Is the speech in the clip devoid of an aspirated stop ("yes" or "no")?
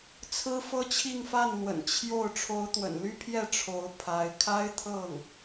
no